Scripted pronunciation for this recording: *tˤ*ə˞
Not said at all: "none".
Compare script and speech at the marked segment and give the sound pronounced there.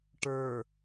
ʈ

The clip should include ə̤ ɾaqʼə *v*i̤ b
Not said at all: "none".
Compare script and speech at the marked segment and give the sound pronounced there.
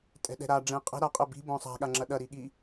b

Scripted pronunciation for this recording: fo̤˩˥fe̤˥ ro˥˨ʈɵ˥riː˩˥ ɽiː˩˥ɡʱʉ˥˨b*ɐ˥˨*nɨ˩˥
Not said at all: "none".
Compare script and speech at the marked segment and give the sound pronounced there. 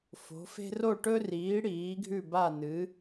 a˥˨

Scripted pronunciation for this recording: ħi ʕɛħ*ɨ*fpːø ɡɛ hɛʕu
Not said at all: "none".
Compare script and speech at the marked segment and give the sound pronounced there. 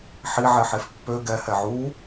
e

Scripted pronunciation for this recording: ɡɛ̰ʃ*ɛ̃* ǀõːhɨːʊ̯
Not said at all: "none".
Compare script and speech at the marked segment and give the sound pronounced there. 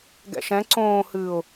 ɛ̃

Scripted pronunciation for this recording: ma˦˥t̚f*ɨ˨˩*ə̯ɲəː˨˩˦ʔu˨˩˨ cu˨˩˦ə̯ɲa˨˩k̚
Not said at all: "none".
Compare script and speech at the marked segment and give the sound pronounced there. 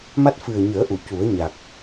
ɨ˨˩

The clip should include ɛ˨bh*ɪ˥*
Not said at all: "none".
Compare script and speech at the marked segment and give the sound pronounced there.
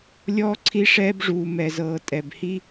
i˥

